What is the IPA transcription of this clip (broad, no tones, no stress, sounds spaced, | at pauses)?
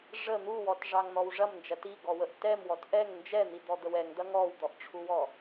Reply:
ʐ ə n̪ u w ɔ t ʐ ɑ ŋ n̪ ɔ w ʐ ɐ m n d͡ʒ ɐ t i ɡ ɔ w ə ʔ t ɛ m w ɔ t ʔ ɛ ŋ n d͡ʒ ɛ n̪ i d̪ ɔ d̪ ə w ɛ ŋ d̪ ɐ ŋ ɔ w d̪ ɔ ʔ ʈ͡ʂʰ u w ɔ